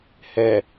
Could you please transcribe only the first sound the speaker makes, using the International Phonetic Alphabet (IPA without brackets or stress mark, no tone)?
h